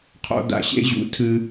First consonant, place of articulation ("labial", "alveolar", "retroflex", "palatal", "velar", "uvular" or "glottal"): uvular